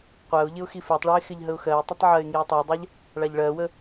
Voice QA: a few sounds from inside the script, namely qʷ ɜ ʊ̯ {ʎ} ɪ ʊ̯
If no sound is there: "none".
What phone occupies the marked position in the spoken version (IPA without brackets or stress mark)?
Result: ʎ